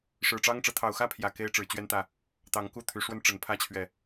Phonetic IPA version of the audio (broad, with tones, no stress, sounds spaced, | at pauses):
ʂ ɻ̩˨˩ ʈ͡ʂ ɑ˦ ŋ ʈ͡ʂ ɤ˨˦ t̪ʰ ɑ˨˩ ʊ̯ x ä˥˨ pʰ j ä˨˩ k e˦ ɪ̯ ʈ͡ʂ ɻ̩˨˩ t͡ɕ ɥ ɛ˦ n t̪ ä˨ | t̪ ɑ˨˦ ŋ k u˥˨ t̪ʰ y˨˦ ʂ w ə˦ n ʈ͡ʂ ə˨˩ n pʰ ä˦ t͡ɕʰ ɥ ɛ˨